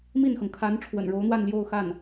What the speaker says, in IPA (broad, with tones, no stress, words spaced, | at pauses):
mi˥˩nxɤ˩ŋ kʰa˧˥n ʈ͡ʂʰwə̰˨˩nɻo˧˥ʊ̯n̪wa˥˧n ljo˥˧ʊ̯xa˥˩n